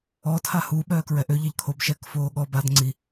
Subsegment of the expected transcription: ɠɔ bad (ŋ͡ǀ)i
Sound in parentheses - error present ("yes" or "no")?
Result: no